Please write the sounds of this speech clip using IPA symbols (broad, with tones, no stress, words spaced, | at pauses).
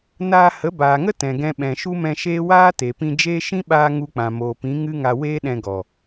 naː˧hə˨˦ baː˨ŋə˦ tɛ̃˨ɡɛ̃˧ɓɛ̃˨ ʃu˦mɛ̃˧ʃeː˦ waː˦ te˨pĩ˧d͡ʒeː˦ ʃĩ˦ɓaː˧ ŋu˧k͡pã˨moː˨pĩ˨˦ ŋɨ˦ŋa˧ weː˦ɗɛ̃˧ɡɔ˨